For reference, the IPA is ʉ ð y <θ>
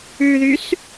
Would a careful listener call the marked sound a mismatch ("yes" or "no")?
yes